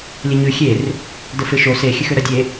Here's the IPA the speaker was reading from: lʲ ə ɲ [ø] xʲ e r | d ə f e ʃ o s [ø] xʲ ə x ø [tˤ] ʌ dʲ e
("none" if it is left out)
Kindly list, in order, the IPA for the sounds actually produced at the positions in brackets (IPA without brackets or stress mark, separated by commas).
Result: ʉ, e, ɾ